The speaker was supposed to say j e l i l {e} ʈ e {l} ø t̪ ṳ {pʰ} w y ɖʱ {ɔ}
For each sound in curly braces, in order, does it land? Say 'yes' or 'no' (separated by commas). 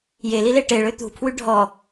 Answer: yes, no, yes, yes